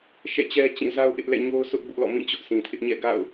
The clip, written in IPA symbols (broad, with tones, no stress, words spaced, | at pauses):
ʃɛ̰˦˨t͡ɕɛ˦ t͡ɕĩ˦˨ za˦ʊ̯ʔɪ˦ʔ lɛ̰˦˨ɲo˦ʊ̯sʰʊ˦ʔ bʊ˦ʔlɔ̰˦˨mĩ˦˨ t͡ɕʊ˦ʔsĩ˨tʰɪ˦ʔ ɲɛ̰˦˨ɡa̰˦˨ʊ̯